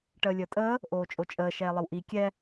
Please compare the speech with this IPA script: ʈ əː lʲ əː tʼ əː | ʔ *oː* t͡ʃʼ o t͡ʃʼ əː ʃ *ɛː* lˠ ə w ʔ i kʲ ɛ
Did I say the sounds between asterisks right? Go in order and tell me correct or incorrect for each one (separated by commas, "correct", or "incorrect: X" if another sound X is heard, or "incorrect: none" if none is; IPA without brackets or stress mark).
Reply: correct, correct